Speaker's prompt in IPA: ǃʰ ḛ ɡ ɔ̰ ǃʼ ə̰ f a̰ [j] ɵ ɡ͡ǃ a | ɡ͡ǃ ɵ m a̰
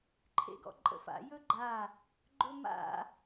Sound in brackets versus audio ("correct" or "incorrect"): correct